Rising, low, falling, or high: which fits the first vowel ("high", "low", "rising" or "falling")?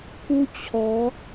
high